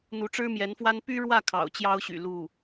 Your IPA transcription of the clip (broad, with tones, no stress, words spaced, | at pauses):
n̪u˧˥ʈ͡ʂɻ̩˥mjɛ˧˥nfwa˥n py˥ɻwä˥˩ kʰɑ̰˨˩ʊ̯ t͡ɕjɑ˥ʊ̯ɕy̰˨˩ lu˥˩